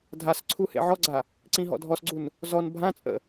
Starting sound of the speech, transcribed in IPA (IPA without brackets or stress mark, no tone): dʱ